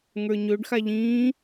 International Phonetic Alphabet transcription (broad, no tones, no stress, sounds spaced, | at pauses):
ŋ ə˞ ɲ ø ɖ x a ʎ ĩː